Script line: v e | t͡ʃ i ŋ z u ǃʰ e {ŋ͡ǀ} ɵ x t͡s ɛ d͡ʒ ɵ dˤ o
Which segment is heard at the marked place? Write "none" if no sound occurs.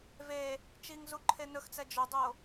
n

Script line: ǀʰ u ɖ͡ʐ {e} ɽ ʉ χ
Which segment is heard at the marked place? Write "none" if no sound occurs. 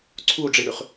i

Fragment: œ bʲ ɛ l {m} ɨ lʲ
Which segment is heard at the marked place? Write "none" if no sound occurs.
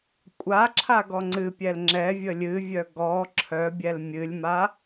mʲ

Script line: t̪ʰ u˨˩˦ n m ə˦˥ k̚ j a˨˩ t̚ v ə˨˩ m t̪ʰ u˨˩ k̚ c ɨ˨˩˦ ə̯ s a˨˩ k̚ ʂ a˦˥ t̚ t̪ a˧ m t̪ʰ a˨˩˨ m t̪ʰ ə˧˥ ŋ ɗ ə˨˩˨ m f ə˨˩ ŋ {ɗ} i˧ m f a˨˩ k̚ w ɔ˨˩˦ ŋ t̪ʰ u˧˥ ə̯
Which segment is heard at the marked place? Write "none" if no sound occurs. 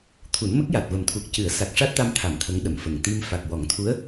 t̪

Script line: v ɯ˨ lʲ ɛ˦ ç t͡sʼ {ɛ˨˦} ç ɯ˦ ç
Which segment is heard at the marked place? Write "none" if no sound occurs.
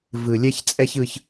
ɛ˦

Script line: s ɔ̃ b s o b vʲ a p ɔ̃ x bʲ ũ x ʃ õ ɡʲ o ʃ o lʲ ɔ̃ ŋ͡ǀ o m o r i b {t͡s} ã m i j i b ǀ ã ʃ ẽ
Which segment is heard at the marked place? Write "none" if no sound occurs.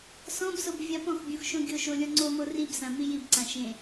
s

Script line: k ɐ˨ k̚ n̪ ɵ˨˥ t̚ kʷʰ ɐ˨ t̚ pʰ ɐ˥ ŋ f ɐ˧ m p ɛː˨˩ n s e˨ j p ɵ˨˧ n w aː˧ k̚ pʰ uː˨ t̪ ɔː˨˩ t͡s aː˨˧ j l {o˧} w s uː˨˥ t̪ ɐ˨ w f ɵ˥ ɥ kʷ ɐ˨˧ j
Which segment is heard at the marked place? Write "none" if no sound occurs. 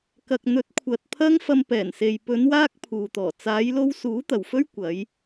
o˧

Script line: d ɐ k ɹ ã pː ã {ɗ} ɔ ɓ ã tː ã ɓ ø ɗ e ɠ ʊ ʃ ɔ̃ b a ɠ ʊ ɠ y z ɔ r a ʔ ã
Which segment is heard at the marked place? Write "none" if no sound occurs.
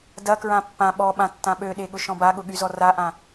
ɓ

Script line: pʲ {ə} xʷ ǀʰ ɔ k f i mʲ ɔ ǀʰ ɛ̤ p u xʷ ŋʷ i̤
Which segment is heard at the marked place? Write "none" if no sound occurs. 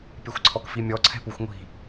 ɛ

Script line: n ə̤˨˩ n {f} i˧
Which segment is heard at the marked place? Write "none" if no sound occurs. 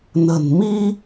m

